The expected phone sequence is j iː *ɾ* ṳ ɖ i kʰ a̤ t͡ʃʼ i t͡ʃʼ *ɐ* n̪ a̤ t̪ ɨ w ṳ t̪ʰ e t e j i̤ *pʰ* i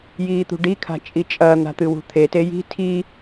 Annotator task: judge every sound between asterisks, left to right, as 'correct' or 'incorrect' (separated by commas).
incorrect, correct, incorrect